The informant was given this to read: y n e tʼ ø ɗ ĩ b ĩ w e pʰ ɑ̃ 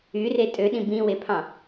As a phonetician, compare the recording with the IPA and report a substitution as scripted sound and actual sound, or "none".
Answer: n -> r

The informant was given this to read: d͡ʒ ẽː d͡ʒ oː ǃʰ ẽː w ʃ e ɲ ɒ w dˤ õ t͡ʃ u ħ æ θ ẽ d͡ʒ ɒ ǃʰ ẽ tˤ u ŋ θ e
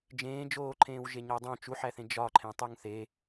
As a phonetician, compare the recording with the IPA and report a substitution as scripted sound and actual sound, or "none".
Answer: ʃ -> ʒ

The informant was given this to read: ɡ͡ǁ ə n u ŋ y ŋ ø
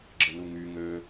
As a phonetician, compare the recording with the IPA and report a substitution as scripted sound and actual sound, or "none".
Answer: none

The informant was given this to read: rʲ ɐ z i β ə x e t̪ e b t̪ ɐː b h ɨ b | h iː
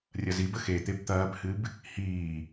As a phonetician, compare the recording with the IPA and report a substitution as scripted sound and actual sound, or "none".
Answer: β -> b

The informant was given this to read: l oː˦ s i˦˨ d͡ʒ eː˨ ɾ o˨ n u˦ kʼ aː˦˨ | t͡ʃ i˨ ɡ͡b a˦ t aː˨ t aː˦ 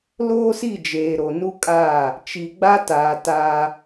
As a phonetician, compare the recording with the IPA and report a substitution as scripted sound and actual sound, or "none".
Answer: none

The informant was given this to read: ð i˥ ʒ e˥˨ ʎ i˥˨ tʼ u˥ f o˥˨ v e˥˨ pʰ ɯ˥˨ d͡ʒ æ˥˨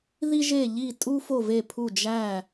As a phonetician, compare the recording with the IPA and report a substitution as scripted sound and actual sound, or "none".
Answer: ɯ˥˨ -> u˥˨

